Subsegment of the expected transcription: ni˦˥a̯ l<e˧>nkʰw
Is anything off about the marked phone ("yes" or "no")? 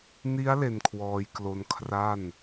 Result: no